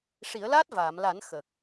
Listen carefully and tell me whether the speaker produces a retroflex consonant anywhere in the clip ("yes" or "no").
yes